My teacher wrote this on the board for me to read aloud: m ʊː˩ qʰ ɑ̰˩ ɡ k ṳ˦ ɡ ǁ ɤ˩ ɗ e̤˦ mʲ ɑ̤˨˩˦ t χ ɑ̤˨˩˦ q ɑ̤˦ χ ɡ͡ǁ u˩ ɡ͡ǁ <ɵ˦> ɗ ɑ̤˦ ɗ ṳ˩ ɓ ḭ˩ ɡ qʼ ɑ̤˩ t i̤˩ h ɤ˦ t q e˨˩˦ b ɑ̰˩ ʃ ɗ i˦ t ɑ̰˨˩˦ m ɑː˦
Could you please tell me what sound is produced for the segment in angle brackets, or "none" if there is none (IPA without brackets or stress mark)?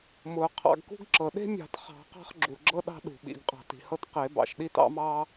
ɤ˦